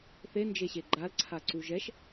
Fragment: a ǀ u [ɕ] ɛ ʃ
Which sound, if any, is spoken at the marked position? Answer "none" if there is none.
ʒ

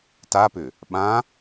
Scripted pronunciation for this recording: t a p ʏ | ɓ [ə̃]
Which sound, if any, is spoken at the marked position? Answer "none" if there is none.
ã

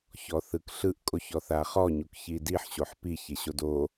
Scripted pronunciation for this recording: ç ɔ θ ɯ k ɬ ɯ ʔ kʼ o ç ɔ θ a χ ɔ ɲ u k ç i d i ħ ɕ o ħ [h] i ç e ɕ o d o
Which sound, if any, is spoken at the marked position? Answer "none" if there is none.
p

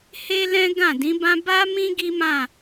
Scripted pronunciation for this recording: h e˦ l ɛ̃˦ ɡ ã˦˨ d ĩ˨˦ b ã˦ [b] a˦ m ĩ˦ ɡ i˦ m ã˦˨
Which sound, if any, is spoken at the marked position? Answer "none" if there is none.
b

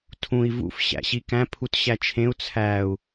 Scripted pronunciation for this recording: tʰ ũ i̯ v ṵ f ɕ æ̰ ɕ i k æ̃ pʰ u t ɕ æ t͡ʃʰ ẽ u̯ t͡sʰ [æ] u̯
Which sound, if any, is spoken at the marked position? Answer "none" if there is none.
æ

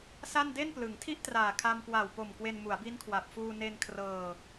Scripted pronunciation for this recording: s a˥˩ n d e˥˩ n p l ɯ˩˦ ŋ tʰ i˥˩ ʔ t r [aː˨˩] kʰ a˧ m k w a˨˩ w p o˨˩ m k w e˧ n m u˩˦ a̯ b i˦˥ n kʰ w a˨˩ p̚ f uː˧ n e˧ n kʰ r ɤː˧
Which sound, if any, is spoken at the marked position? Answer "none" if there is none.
aː˨˩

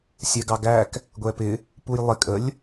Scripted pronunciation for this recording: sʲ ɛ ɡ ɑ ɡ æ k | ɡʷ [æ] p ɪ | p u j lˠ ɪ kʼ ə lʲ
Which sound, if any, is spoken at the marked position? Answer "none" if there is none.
ɛ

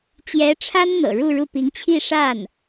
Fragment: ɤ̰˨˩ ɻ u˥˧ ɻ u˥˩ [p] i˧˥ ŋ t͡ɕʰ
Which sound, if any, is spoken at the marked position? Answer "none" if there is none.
p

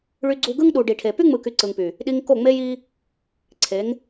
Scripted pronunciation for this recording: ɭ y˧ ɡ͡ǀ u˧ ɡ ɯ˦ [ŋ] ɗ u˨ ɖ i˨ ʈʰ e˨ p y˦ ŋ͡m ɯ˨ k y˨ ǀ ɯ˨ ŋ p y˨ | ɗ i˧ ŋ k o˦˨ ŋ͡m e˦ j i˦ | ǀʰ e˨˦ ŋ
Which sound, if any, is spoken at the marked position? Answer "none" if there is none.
ŋ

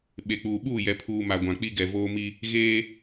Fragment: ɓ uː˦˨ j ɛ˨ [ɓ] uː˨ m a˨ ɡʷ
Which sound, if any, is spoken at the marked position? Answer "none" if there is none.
pʰ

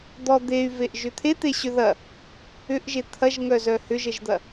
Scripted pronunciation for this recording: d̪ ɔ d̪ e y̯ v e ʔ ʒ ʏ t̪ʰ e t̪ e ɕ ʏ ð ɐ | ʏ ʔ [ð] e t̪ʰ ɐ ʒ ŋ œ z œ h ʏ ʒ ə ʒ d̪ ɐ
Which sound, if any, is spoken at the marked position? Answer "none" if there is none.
ʒ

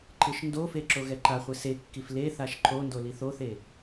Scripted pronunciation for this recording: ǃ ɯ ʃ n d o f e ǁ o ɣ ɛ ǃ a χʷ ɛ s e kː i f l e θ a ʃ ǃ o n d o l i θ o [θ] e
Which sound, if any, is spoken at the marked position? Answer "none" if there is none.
θ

